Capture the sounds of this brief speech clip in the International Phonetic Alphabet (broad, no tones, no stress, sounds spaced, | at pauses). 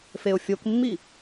f e ʊ̯ fʲ o k mː i